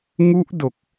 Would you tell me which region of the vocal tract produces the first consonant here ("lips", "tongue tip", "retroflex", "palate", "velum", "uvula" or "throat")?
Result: velum